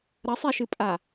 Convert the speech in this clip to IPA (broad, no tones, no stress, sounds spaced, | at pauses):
ɾ ɐ sˤ e ʃ ɨ pʼ a